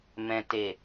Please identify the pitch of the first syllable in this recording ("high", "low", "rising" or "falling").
low